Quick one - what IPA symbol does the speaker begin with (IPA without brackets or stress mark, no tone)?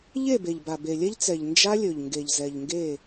ʎ